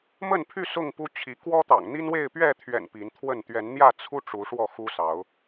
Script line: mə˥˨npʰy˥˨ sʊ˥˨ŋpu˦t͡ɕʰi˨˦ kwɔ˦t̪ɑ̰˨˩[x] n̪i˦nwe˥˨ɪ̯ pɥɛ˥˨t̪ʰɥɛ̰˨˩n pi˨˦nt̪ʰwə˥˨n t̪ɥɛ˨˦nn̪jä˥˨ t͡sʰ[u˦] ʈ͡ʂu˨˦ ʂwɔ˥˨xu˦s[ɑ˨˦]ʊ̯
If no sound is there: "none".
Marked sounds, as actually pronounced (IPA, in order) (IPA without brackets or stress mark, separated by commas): ŋ, u˦, ɑ˨˦